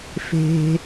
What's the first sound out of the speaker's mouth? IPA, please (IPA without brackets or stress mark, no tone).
f